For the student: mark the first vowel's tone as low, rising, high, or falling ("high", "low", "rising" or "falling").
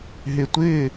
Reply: low